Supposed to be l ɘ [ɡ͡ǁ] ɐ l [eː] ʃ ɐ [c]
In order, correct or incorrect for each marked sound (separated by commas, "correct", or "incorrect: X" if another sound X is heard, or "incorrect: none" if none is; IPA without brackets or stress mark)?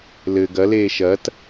incorrect: ɡ, correct, incorrect: t